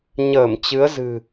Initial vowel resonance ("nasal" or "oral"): oral